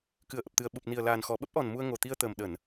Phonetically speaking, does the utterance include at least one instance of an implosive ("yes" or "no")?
yes